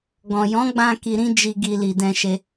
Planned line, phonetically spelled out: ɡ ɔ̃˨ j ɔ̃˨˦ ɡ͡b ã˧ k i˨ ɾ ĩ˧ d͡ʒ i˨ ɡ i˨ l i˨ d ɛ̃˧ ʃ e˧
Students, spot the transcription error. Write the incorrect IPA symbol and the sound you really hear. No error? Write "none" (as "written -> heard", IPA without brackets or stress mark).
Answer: none